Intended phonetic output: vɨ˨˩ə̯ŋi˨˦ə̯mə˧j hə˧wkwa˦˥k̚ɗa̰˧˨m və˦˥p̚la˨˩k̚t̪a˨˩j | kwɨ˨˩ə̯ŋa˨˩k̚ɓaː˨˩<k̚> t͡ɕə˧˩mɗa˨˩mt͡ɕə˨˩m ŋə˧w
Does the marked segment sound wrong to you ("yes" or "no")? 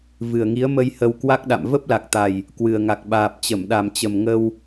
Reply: yes